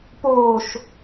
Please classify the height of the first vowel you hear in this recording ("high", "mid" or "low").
mid